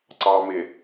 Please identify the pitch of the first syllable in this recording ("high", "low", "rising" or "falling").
low